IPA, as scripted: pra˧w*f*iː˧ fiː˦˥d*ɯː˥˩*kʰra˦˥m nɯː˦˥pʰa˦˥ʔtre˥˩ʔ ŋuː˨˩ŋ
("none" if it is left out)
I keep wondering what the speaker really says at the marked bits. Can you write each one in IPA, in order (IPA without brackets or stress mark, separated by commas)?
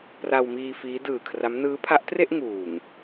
m, ɯː˨˩